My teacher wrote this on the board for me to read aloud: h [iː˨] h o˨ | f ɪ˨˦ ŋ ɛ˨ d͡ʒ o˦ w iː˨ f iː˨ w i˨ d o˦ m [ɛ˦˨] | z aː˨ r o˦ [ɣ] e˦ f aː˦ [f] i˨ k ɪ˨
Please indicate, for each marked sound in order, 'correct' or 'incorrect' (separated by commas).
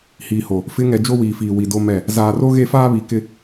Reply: correct, correct, correct, incorrect